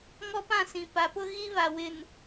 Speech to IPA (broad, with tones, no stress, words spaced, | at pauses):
ŋɔ˦pã˦˨sĩ˨ pa˨˦pʊ˦ ɣi˦βa˨wɪ˨n